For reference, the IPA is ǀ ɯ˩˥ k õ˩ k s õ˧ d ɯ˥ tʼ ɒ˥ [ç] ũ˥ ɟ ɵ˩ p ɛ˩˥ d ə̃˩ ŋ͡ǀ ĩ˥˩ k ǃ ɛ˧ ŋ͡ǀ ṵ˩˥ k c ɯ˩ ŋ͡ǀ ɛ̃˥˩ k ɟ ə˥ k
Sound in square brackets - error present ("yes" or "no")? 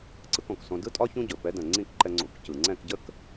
no